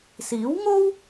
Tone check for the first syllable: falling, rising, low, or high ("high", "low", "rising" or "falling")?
rising